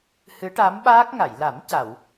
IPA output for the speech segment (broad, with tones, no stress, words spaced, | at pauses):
hɨ˧˥ʈa˧˥mɓaː˦˥k̚ ŋa˨˩˨jla˨˩˦m ca˨˩˨w